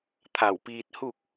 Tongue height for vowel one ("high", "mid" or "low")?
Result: low